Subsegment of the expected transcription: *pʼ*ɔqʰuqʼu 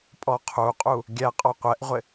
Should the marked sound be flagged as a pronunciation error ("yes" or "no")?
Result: no